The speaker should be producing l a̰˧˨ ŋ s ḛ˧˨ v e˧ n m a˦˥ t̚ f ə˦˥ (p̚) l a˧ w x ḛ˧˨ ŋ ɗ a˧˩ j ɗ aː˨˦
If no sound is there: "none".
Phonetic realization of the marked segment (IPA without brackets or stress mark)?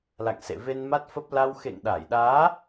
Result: p̚